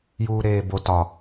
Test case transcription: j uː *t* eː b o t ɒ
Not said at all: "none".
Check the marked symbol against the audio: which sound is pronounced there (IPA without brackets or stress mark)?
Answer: ɾ